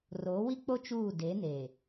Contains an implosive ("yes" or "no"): no